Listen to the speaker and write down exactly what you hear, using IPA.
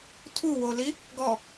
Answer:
tʰ u w o l i | ɡ ɔ

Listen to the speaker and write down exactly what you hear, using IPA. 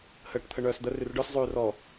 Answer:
h əː ʈ t̪ʰ ə ɳ œː s d̪ ə r y r ɖ œ s zˤ yː r ɔ

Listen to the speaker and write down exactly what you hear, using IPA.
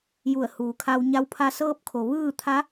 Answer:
j u˧˩ ə̯ h uː˩˧ kʰ a˧ w ɲ a˧˥ w pʰ a˧˥ s ɤː˧ p̚ kʰ o˩ ʋ ɯː˥˨ t̪ʰ a˧˥

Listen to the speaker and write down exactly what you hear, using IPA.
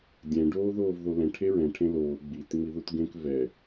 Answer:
dʲ ɛ̃ ɖ oː ð oː v ð o l ɛ̃ ʈʰ e ɹ ɛ̃ ʈʰ ẽ l oː ɡ͡b i t ŋ͡m i ð u t ɡ ẽ k v ɛ

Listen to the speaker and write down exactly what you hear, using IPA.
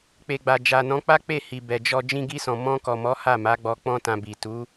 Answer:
k͡p e˨ ɡ͡b a˨ d͡ʒ a˨ n ɔ̃˨˦ k͡p a˦ k͡p e˦˨ h i˨ b ɛ˨ d͡ʒ ɔ˧ d͡ʒ ĩ˧ ɡ i˧ s ɔ̃˨ m ɔ̃˧ k ɔ˨ m ɔ˨˦ h a˦˨ m a˨˦ ɡ͡b ɔ˧ k͡p ɔ̃˦ t ã˧ b i˨ t u˨˦

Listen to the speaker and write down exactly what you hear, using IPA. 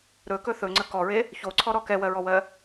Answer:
ɾ ɵ k ɵ θ ɵ ŋ͡ǀ ə k ɔ ɹ e | ç o ǀʰ ɔ ɾ ɔ k ɛ w ɜ ɹ ɔ w ɜ

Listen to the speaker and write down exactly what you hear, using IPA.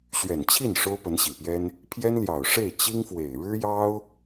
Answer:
ɕ ɥ ɛ˨˩ n t͡ɕʰ i˥˩ n ʂ o˥ ʊ̯ p ə˧˥ n ɕ i˨˩ p j ɛ˥ n | pʰ j ɛ˥ n l j ɑ˨˩ ʊ̯ ʂ e˥˩ ɪ̯ t͡ɕ i˥ ŋ f w e˨˩ ɪ̯ ɻ ɻ̩˥ j ɑ˥ ʊ̯

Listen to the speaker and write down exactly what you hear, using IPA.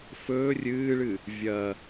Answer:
f ɵː rʲ ɨː ɭ ɨ | vʲ ɐ

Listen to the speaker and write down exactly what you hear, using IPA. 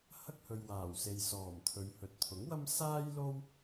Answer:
h ɐ˥ k̚ h ɵ˨ ɥ w aː˨˩ w s e˨ j s ɔː˨˩ m t̪ʰ ɵ˨˧ ɥ h ɵ˨ t̚ t̪ʰ ʊ˨˥ ŋ w ɐ˥ m s aː˥ j l o˥ w

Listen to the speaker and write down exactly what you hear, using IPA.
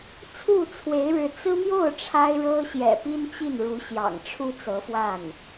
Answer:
t͡sʰ u˥˩ t͡sʰ w e˧˥ ɪ̯ ɻ ɻ̩˧˥ t͡s ɹ̩˥ m j o˥˩ ʊ̯ ʈ͡ʂʰ a˥ ɪ̯ ɻ ɤ˥ ɕ j ɛ̰˨˩ p i˥ n t͡ɕ i˥˩ n ɻ u˧˥ ɕ j ɑ̰˨˩ ŋ ʈ͡ʂʰ u˥ t͡s ɤ˧˥ f w a˥˩ n

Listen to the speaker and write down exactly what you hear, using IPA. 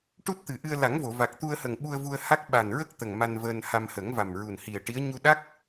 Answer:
ʈ u˦˥ t̚ t̪ ɨ˨˩ ʔ ɨ˧ ə̯ l a˨˩˦ ŋ v o˨˩˨ v a˨˩ k̚ t̪ u˧ ə̯ h ə˨˩ ŋ ɓ u˧ ə̯ v u˧ ə̯ h a˦˥ k̚ ɓ a˨˩ n ɹ ə˦˥ k̚ t̪ ə˨˩ ŋ m a˧ n v əː˧ n h a˧ m h ə˨˩˦ ŋ v a˨˩ m ɹ u˨˩ n h i˨˩ ə̯ ʈ i˧˥ ə̯ ɲ u˧ ɗ a˦˥ k̚

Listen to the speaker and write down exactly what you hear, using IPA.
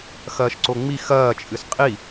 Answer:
x ɐː ʃ ǀ o ŋ͡m i x ɐː t͡ʃʼ ɨ s qʼ i

